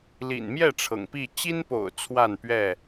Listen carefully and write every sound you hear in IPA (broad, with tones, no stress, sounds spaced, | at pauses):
l ḭ˨˩ n m j ɛ˥˨ ʈ͡ʂʰ ɤ̰˨˩ ŋ p i˥˨ t͡ɕ i˦ n p o̰˨˩ ʊ̯ t͡sʰ w a˥˨ n p ɥ ɛ˥˨